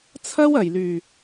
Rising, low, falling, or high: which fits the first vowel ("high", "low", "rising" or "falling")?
high